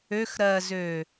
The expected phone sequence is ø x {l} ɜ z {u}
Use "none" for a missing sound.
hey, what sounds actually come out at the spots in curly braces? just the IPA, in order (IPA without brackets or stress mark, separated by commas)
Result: ɾ, ø